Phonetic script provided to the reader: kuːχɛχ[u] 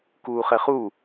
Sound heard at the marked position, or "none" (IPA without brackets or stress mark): u